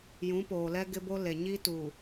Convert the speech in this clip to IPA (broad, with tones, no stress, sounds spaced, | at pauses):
j ũ˨˦ p oː˨ l ɛ˦ ɡ ɪ˦ b o˦ l e˨ ɲ i˦ t u˨